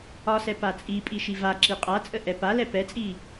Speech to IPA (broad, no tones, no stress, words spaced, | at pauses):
ɒsɛ pat͡sʼipʼi ʃivaǁi qʼat͡sʼə ʔɛpalɛ pɛt͡sʼi